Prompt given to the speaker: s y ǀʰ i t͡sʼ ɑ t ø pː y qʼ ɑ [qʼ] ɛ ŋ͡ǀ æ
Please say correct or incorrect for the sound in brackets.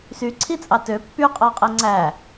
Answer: correct